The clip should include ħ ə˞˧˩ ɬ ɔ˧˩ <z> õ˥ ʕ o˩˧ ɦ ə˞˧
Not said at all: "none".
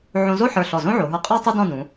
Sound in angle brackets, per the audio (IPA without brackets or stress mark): z